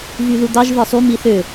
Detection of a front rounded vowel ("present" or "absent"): present